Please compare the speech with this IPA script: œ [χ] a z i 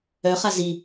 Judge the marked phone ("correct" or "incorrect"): correct